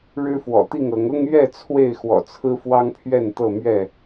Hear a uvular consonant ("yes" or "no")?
no